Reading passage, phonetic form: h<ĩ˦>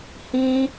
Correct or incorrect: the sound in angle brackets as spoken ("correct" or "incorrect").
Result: correct